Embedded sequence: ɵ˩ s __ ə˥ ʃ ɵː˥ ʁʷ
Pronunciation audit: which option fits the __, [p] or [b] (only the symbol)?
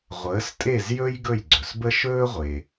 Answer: b